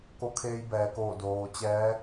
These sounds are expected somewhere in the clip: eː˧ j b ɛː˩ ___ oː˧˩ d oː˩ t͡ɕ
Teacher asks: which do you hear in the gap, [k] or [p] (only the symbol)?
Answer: k